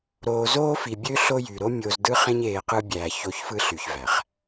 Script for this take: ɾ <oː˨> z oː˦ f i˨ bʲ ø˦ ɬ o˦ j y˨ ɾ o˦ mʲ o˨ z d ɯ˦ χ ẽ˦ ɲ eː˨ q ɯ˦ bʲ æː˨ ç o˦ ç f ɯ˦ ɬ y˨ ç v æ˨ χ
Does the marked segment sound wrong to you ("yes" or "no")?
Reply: no